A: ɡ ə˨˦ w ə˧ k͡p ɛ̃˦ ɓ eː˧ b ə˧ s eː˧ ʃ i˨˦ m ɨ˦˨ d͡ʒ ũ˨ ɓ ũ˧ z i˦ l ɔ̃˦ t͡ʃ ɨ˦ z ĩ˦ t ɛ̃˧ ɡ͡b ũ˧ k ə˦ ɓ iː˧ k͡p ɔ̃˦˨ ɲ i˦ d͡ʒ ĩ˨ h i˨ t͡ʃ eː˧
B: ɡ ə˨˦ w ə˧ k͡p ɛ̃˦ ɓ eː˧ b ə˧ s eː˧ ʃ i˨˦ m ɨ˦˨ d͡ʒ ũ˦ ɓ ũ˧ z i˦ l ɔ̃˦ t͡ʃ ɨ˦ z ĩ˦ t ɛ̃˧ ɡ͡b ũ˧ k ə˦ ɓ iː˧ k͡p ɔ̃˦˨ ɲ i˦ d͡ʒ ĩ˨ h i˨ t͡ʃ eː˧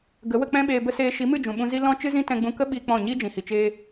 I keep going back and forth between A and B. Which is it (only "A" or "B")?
A